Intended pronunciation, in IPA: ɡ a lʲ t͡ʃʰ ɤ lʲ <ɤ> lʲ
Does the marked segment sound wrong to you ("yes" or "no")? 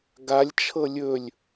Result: yes